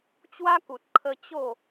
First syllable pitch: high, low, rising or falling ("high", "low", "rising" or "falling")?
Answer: high